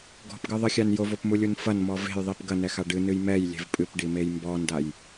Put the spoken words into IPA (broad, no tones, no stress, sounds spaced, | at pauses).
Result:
ɡ ɔ̤ p ɡ ɨ ðˤ ɨ xʲ a n j o v o p m u lʲ u n f ɐ n m ɔ v e̤ j ðˤ i p ɡ ɐ n ɛ x a ɖ ɨ n ɨ j m ɛ j lʲ e̤ v pʼ ɨ p ɖ i m e j m b ɔ n d a j